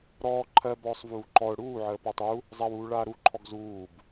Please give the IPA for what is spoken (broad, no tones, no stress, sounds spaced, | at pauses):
ɾ ɔː ǃʰ ɜ b ɔː sˤ v uː ǃ ɔ ʊ̯ ɽ uː ʕ əː p a tˤ u | zˤ a w uː ɭ aː ɾ u ǃʰ ɔ ɡ z uː b